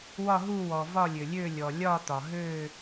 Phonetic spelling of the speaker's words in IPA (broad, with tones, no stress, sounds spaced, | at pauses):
w ɒ˦˨ ɦ u˦˨ w ɔ˩ v ɒ˦˨ lʲ ø˩ lʲ ø˦˨ lʲ ɔ˩ lʲ ɒ˦˨ t̪ ɒ˩ ɦ øː˦˨